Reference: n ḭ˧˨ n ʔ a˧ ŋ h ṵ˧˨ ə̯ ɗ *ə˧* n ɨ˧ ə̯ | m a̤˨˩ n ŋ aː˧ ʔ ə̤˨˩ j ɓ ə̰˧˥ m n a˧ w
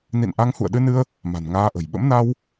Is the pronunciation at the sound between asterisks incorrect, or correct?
incorrect: ɨ˧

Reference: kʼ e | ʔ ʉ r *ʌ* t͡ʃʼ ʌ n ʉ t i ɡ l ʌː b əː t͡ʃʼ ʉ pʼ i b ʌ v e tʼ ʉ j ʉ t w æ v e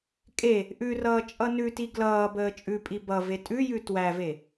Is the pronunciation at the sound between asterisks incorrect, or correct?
incorrect: ʌː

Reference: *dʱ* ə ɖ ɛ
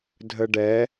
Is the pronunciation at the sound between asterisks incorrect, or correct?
correct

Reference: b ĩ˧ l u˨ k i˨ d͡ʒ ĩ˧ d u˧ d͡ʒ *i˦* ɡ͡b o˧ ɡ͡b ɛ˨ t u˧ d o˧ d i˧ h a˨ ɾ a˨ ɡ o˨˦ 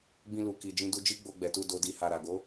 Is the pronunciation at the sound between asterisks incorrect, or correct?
correct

